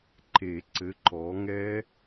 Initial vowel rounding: unrounded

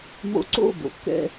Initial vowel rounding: rounded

